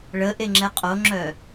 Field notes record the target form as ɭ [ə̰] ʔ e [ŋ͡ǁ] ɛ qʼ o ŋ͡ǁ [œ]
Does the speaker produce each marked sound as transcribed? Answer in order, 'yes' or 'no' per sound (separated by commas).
no, yes, yes